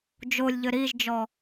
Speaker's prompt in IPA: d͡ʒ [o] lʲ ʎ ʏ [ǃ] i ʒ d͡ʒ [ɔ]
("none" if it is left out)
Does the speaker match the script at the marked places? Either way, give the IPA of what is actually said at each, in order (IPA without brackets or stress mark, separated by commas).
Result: o, ɾ, ɔ